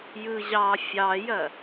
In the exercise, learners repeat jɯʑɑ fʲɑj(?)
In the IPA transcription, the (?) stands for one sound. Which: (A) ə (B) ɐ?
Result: B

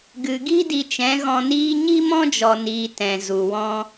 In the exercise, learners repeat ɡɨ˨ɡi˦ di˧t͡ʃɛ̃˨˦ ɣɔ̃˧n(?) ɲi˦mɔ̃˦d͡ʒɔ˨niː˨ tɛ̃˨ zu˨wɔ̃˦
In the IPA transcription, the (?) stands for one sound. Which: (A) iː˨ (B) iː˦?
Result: B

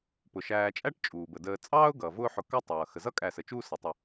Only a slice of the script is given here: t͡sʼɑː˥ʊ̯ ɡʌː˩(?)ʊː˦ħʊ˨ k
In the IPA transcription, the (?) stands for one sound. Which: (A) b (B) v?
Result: B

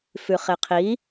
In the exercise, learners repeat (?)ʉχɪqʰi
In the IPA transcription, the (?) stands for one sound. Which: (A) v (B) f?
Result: B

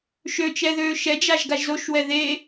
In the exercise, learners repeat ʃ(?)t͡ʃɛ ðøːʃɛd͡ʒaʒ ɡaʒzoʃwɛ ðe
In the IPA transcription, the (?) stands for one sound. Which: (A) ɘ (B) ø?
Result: B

